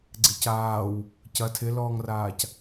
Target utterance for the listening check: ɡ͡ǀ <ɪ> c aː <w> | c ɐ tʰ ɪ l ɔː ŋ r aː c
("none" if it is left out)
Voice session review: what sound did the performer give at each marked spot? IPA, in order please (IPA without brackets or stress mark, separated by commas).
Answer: ɪ, w